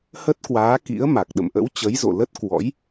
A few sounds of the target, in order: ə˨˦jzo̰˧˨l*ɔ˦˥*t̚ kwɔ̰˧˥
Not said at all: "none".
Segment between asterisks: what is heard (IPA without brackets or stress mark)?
ə˦˥